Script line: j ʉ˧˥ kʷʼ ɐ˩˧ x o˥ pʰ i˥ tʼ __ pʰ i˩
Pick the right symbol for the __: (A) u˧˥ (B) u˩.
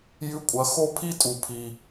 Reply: B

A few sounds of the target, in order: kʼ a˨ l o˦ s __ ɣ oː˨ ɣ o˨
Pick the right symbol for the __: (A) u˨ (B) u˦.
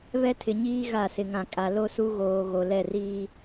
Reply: B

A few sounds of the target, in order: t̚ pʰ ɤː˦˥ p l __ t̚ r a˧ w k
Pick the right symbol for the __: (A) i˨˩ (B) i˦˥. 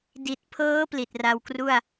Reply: A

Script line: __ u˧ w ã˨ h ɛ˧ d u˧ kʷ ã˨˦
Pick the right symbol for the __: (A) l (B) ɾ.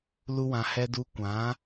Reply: A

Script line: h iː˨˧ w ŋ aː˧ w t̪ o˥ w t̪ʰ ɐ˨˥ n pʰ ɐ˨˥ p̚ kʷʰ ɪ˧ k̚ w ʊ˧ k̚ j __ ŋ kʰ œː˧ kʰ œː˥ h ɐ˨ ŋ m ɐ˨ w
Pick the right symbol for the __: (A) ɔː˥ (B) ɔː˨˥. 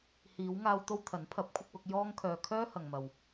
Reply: A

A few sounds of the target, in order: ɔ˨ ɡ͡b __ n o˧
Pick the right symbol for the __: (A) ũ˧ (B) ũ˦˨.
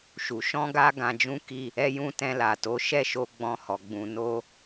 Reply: A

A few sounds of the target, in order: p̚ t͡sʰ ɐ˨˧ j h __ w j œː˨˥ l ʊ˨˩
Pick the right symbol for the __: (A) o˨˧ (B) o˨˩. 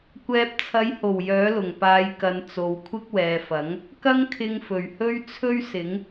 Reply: B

